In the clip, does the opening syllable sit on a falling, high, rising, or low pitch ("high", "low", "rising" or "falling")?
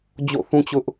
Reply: falling